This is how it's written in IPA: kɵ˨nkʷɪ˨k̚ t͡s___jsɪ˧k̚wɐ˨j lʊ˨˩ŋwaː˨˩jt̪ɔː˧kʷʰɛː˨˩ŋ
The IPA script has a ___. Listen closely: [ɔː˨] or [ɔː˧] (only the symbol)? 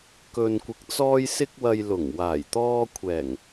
ɔː˧